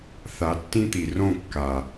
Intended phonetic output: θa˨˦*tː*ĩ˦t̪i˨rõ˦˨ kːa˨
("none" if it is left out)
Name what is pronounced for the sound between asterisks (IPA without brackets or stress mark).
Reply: tː